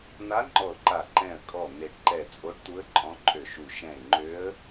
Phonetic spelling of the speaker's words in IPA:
n̪ a˧˥ ŋ͡ǃ ɔ˧˩ ʊ̯ ǃ a˧˩ ǃ ɛ̃˧˩ ə̯ kʼ ɔ˧˩ n̪ e˧˩ ɖ ǃ ɛ˧˩ t͡sʼ o˧˥ ɖ t̪ u˧˥ ə̯ ǃʼ ɔ̃˧˥ ǃʼ ø˧˩ ʃ u˧˩ ʃ ɛ̃˧˩ ɪ̯ ŋ͡ǃ ø˧˥ ə̯

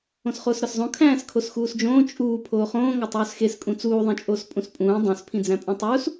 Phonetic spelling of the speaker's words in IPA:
õ s χ oː s ɾ ɒ s zˤ õ kʰ æ̃ː s kʰ o s x uː s d͡ʒ õː t͡ʃʼ uː pʰ oː χ õː ŋ ɒ tˤ uː s x e s kʼ ũ t͡s uː ðˤ ĩ t͡ʃʼ oː s pʼ ũ s pʼ ũː dˤ õ s pʰ ĩ d͡z æ̃ pʼ ũ tˤ uː s

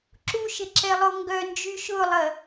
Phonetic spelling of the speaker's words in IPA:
ǁ u ʃ ɪ ǁ ɛ lˠ o ŋ ɡ œ n d͡ʒ y ʃ ʊ lˠ ɐ

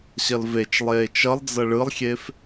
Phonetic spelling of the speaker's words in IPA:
ɕ ʌ l v e t͡ʃ lˠ eː t͡ʃ ʌ lˠ d͡z ʌ ɭ ɯ lˠ xʲ e f

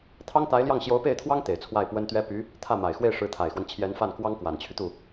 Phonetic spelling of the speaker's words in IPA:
t̪ʰ ɑ˥ ŋ t̪ a˧˥ ɪ̯ l j ɑ˥˩ ŋ ɕ j o˧˥ ʊ̯ p e˥˩ ɪ̯ t̪ʰ w ɑ˥ ŋ t̪ e˨˩ ɪ̯ t͡sʰ w a˥˩ ɪ̯ p w ə˥ n t̪ ɥ ɛ˥ p y˧˥ | t̪ʰ ä˥˩ m a˨˩ ɪ̯ x w e˥˩ ɪ̯ ʂ ɻ̩˧˥ t̪ʰ a˨˩ ɪ̯ x w ə˦ n t͡ɕʰ j ɛ˧˥ n f a˥˩ n k w ɑ˥ ŋ k w a˨˩ n t͡ɕʰ y˦ t̪ u˥˩

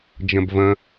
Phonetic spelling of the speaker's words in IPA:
d͡ʒ ɐ̃ b v ɐ̃

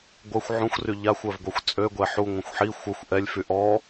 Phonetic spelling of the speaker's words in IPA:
ɡʷ ə xʷ ʕ ũ xʷ r y ʎ a xʷ œ v ɡʷ œ xʷ t͡sʼ ø ɡʷ ɛ ħ u ŋʷ ə̃ xʷ ħ i xʷ œ xʷ ʔ ɛ lʲ f y ʔ ɔ

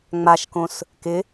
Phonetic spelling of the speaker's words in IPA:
ŋ͡m a ʃ k õ s | k ɪ

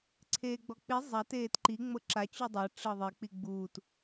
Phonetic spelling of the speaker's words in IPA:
ǀʰ eː ɡ͡b ɔ k͡p i zˤ a t eː t ǃ i ŋ͡m ɤ ǁ a t͡ɕ u dˤ a ʈ͡ʂ ɤ ðˤ e k͡p i ɡ͡b uː t

